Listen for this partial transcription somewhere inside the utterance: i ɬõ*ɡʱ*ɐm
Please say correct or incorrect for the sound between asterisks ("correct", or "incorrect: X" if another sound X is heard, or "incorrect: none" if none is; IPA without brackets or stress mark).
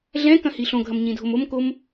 correct